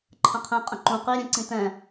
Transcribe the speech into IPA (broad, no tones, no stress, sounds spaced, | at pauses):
ǃʰ ə̃ qʰ ɛ̃ qʼ ə̃ ǃ ũ q i ɾʲ ɛ̃ ǀ ĩ t ɛ̃